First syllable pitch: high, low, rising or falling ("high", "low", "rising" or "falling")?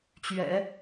low